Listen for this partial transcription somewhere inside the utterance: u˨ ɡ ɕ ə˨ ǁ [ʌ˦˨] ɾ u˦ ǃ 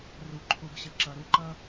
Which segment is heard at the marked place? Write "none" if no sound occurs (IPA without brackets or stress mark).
ʌ˨